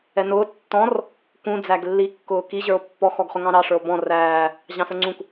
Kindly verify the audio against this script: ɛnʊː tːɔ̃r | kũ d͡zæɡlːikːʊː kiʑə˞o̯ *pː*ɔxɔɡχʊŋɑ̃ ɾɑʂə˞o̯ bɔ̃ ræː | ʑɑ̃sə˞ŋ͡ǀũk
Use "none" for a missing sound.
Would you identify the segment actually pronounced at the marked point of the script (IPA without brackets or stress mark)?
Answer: pː